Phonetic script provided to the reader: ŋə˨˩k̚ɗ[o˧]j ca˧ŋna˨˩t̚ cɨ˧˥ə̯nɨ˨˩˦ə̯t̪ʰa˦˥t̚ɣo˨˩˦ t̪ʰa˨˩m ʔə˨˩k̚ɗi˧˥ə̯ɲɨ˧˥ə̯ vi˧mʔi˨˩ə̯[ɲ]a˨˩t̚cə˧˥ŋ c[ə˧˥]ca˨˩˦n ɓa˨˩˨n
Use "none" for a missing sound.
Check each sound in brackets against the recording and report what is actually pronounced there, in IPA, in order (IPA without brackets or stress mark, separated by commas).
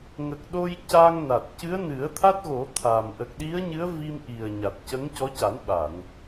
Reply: o˧, ɲ, ɔ˧˥